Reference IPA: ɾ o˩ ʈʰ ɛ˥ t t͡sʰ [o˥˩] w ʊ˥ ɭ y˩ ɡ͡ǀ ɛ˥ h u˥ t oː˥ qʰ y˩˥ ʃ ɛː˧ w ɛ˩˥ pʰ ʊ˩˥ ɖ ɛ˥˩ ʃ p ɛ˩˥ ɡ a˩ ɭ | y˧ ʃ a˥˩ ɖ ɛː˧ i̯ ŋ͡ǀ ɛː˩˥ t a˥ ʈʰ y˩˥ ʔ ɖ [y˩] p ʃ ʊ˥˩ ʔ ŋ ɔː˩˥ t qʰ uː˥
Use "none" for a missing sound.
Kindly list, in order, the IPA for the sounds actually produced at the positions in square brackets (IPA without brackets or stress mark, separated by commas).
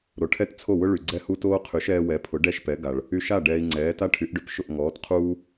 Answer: o˥˩, ʏ˩